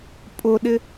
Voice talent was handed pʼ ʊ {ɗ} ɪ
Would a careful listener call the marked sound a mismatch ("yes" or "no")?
no